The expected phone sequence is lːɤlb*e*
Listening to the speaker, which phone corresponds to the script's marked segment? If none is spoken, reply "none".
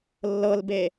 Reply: e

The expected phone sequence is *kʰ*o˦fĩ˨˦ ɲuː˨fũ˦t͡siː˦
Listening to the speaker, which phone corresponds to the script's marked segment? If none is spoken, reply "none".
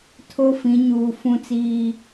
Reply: tʰ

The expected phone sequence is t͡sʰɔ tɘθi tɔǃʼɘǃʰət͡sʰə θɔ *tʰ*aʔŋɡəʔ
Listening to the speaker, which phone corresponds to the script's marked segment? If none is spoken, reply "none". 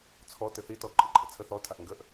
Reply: tʰ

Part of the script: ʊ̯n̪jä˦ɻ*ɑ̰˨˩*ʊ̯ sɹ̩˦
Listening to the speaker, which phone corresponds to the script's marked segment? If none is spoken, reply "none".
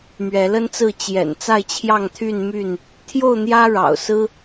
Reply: ɑ̰˨˩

